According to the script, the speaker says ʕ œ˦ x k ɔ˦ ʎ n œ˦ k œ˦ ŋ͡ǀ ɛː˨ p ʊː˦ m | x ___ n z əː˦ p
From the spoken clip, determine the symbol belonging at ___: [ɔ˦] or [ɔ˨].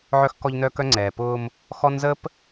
ɔ˦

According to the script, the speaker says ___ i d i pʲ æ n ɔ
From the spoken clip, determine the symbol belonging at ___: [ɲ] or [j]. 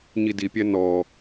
ɲ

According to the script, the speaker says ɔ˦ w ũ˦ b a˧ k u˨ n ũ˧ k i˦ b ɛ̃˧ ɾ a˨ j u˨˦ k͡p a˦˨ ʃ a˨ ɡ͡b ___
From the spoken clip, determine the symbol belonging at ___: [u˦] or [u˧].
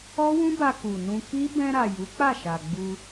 u˧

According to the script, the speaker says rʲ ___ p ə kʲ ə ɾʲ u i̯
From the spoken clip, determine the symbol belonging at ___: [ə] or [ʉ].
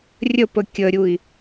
ə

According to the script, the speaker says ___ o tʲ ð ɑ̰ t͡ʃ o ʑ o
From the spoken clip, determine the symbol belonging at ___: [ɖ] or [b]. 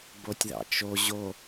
b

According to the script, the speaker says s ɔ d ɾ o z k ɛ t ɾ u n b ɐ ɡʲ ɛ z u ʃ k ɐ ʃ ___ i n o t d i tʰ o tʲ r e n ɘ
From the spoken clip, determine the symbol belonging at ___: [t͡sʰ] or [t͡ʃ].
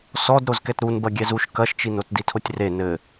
t͡ʃ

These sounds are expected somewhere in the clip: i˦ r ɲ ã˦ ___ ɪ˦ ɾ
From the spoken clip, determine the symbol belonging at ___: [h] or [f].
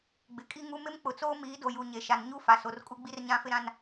f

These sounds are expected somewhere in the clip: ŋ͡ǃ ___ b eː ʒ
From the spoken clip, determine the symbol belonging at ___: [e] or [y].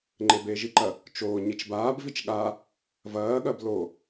e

